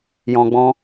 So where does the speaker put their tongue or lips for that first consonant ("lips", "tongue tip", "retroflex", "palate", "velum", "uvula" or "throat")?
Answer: palate